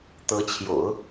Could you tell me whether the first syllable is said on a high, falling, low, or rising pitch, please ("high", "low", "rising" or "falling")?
rising